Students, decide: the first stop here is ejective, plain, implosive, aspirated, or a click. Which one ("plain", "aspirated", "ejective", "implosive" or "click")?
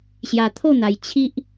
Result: aspirated